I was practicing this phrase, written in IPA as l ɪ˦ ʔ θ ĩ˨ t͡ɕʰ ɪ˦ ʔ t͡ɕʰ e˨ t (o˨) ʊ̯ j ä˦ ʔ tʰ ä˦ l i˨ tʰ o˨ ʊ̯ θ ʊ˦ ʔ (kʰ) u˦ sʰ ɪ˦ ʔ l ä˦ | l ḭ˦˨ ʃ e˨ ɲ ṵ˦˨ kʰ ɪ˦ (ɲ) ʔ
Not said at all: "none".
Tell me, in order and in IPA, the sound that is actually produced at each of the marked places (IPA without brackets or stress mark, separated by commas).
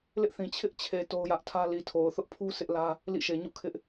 o˦, pʰ, none